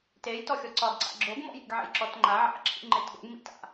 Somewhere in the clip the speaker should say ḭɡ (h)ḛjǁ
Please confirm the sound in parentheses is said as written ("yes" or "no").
no